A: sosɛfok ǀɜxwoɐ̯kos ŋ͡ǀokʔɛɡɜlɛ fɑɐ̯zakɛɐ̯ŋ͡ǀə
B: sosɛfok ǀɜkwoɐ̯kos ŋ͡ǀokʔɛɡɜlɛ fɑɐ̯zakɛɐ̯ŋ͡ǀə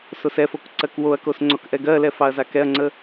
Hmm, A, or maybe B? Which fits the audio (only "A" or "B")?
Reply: B